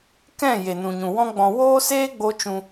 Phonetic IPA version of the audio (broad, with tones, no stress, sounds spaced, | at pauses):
k ɛ̃˦˨ j e˨ n ũ˨ ɲ ũ˨ w ɔ̃˦ ɡ͡b ɔ̃˧ w oː˦ s eː˦ ɡ͡b o˦ t͡ʃ ũ˧